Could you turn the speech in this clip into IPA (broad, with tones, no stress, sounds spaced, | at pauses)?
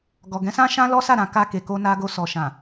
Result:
ɡ ɔ˨ ɡ ɛ̃˨˦ s ã˦ ʃ ã˦ l ɔ˦ s a˦˨ ɾ ã˨ k a˧ k e˨ k o˧ n a˧ ɡ o˧ s ɔ˨ ʃ ã˨